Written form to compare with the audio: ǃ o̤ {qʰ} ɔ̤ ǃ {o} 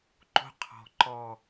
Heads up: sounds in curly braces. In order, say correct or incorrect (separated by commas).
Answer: correct, incorrect